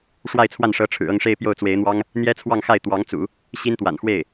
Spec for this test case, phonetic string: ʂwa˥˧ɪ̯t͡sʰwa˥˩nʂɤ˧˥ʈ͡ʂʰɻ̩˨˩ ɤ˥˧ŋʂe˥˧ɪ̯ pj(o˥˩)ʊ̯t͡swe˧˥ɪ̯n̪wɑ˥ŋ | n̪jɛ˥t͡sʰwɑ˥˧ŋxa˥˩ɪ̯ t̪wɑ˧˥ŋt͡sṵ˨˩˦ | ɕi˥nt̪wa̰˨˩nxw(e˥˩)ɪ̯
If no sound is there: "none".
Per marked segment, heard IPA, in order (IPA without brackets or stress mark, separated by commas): o˥˩, e˥˩